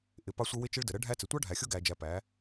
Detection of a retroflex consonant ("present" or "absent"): present